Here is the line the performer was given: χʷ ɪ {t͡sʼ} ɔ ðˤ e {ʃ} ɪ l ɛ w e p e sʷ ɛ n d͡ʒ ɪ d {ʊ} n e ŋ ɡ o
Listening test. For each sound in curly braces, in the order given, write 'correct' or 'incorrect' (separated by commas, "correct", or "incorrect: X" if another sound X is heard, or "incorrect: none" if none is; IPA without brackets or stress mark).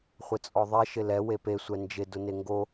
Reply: correct, correct, correct